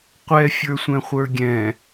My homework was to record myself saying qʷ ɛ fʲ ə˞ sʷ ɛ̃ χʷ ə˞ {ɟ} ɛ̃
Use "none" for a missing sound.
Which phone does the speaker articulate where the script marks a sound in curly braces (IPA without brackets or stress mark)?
ɡʲ